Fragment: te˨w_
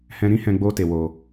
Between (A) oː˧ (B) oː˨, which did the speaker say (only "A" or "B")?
B